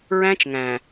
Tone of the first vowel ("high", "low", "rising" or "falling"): high